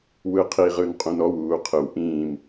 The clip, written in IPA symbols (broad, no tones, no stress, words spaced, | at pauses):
wɯqʰiʁɯn qʼũnɔwuː qʰɯw ʔĩːm